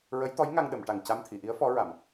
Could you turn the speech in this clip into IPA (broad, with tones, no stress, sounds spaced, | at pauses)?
ɹ ə˧˥ j t̪ ɔ˧˥ j ŋ a˧ ŋ ɗ ə˨˩˨ m ʈ a˨˩ ŋ c a˧ m t̪ʰ i˨˩˨ ʔ i˧˥ ə̯ f ɔ˧˥ ɹ a˨˩˨ m